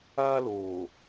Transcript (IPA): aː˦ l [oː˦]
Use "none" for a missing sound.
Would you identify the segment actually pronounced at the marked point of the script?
oː˨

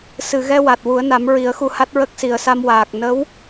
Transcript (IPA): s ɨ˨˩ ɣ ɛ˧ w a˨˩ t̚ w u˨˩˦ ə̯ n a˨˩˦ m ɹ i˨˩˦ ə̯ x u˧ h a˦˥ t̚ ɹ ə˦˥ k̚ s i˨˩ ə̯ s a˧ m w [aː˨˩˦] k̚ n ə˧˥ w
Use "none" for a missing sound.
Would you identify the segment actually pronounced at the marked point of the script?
aː˨˩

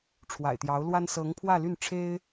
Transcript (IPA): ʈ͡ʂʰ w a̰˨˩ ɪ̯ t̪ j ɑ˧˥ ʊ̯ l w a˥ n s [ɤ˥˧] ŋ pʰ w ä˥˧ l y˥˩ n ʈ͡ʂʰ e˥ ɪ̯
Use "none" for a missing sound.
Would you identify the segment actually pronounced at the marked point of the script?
ɤ˧˥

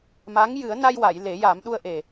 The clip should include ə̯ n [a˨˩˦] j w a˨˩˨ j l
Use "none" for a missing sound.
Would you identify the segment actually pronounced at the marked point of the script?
a˧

